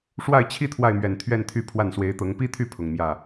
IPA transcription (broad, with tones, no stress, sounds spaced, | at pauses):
ʂ w a˥˩ ɪ̯ t͡ɕʰ i˥ t̪ʰ w a˥˩ ɪ̯ m ɥ ɛ˨˩ n t̪ʰ ɥ ɛ˥˧ n t̪ʰ y˥˧ pʰ w a˥˩ n s w e˧˥ ɪ̯ t̪ ɤ˧˥ ŋ p i˥ t̪ʰ y˥˩ pʰ ʊ˨˩ ŋ m j ä˥˩